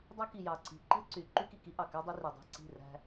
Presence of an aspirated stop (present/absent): absent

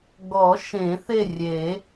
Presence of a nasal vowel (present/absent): present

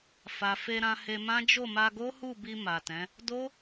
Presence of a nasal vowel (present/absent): present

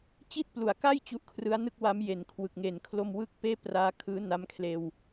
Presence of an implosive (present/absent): absent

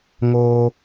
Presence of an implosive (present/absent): absent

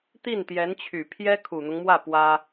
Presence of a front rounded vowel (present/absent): present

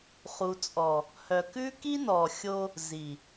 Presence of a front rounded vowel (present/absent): present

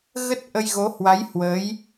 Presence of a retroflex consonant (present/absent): absent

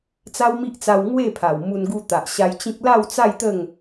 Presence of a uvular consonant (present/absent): absent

